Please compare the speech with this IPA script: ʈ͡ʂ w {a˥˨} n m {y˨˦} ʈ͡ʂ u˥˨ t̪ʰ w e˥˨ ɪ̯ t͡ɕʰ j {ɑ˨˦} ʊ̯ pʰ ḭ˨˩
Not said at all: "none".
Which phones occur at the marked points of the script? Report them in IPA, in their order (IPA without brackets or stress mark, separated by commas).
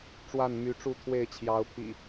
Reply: a˥˨, y˨˦, ɑ˨˦